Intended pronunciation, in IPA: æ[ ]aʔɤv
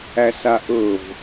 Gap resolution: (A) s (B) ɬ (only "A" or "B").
A